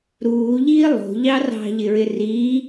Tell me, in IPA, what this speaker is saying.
ɾuːʎiː lˠo̤ʎɑ rɑ̤ʎɪɹɪ riː

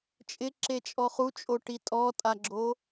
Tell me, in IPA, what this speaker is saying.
t͡ʃʼɪǁet͡ʃʼɔ χut͡ʃʼoʈi tʼɔtʼaɡ͡ǁo

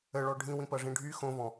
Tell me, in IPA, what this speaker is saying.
əɭɔ ɖʱĩwĩpɐʐĩ ɖʱy xõvɔ̃

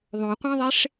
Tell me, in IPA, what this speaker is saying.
ðˤõqʷæ̃ðˤeʂ

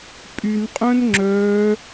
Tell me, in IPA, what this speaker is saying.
pʼynqʼœ̃n ŋ͡ǁœ

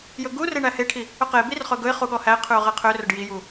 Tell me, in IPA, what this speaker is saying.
jɵɡure ɳæheʈʰi | ɵqebir χɵɡɵɪ̯χu ɠɔhæɪ̯qʰʉʊ̯ ʁeqʰørɵɖ jiju

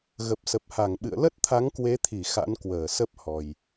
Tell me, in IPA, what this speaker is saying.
ɣə˨˩p̚sə˨˩p̚ha˧˩ŋɓɨ̰˧˨ə̯ lə˦˥t̚t̪ʰa˨˦ŋkwe˨˦t̪ʰi˧˩ xa̰˧˥nkwəː˧˩sə˦˥p̚hɔ˨˩j

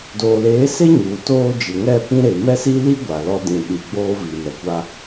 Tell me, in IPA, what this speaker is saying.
doː˨leː˨˦se˦ ɲuː˨toː˦ d͡ʒɪ˨ŋɛ˦˨ pĩ˦ɾe˨ mɛ˦si˦li˦ ɡʷa˨lɔ˦ dĩ˨ɗi˨ ɡ͡boː˦vi˨mɛ˨kʷa˦

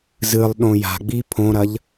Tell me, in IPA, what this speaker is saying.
zɨlˠ ɗõja̤ɡ͡bi pʰõɾɐʎ

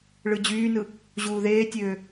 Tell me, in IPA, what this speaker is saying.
ɭɯd͡ʑyːnɯ | ʑuːðeːtʲøː

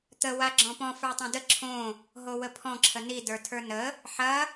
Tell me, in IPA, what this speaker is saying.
t̪ə waɡ͡ǁɔ̃pɔ̃ fə˞tˤõdə ǁʰõ | ɦowəpʰɔ̃ ǁʰəni də˞tʰə˞nə | ħɐ

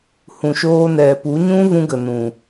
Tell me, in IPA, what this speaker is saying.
hũ˨ʃoː˧nɛ˨ pu˨˦ɲũ˦ vũ˧ɡə˨nũ˨

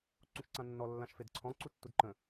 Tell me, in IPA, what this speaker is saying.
ǀũʃǀãnːɔ lːãʃfedǀʰɔ̃ ǀutːudǃə̃

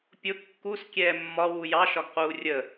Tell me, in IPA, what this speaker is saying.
pʲʊ kːus kʲɛːmːɒ wujɑ ʃɒɡquːrʲə

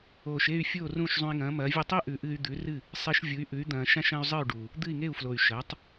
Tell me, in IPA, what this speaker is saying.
oː˩ʃe˥˩y̯ fʲoː˥˩rũː˥˩ʃzˤũ˧i̯ŋɐ̃ː˩˥ mɐː˩˥vʲɨ˥˩ tˤi˥ʔʉ˩˥ʔɨː˧y̯ d̪ʉ˩˥rɨ˥˩ | sˤi˧ʃvʲu˩˥y̯ʔʉ˩˥y̯ d̪ɐ̃ː˧ʃã˥ʃɐ̃ː˥y̯ zˤɨ˥˩y̯ɖuː˩ | d̪ɨ˥˩i̯ŋe˥˩u̯flo˩y̯ ʃɐː˩˥tˤ

